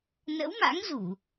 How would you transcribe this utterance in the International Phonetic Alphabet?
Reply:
n ə̰˧˥ w m a̰˧˥ ŋ z u˧˩˨

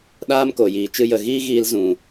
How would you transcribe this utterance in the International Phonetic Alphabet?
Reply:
ɗ aː˦ m k o˨ j iː˨ t͡ʃ ɨ˧ j ə˨ ɣ iː˦ ɣ iː˧ l z ũ˨

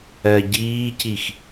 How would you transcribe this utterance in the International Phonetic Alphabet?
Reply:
ɜ ɟ iː c i x

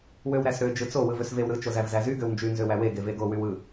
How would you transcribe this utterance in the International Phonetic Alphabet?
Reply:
w ø w ɾ æ s ɾ ø d͡ʒ ɯ t͡s o w ɯ v ø s v e w ɾ ɯ t͡ʃ o z æ v z æ z y ɡ ø w n d͡ʒ y n z ø w æ w e ɡ e v e ɡ o w y w ɯ

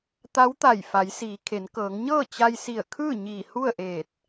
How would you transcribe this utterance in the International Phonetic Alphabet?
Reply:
t̪ a˧˥ w t̪ a˧˩ j f a˩˧ j s iː˩˧ kʰ e˩˧ n k ɤː˩˧ ŋ ɲ ɤː˥˨ t͡ɕ a˧ j s i˧˩ ə̯ kʰ ɯː˥˨ ɲ iː˧˩ h u˥˨ ə̯ ʔ eː˧˩ t̚

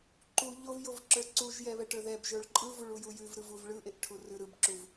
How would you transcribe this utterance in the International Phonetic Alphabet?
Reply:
ǃ u ʎ o v j o v ǁ ə˞ ǀ u ʒ j ɛ β ɛ ʈ ə˞ ð ɛ b ʒ ə˞ ɭ ǃʼ ɯ v u ɭ u j u j ʉ v ɾ ɯ v u v ɭ ɯ ʔ e ʔ ʈʰ u r ʉ ɾ ɯ b ǁ u v

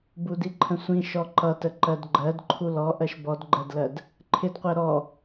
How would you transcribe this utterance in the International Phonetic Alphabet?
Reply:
b u d i ǃʰ ə̃ sʷ ĩ ʃ ɔ ǃ ʌ t ə ǃ ɜ d ɡ͡ǃ ɜ d ǃʰ u l ɔ ʔ ɜ ʃ b ɔ d ɡ͡ǃ ɜ d l ɜ d | ǃʰ ɪ d qʷ ɜ ɾ ɔ

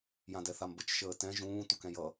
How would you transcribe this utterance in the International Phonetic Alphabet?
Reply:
j ã d ɛ θ a m b ə t͡ʃ ʃ əː t ɛ̃ ʒ ũː t u k ɛ̃ j ʌ

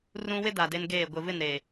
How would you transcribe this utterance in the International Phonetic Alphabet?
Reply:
r ũ˦ w ɪ˦ d a˨ d e˦ n ɡ eː˦˨ ɡʷ ɪ˨ v ɪ˦˨ n ɾ eː˨

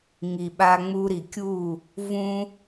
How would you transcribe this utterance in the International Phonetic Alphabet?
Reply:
ŋ i˨ ɓ a˧ ŋ͡m u˧ ɾ i˨ kʲ u˦˨ | v ũ˦

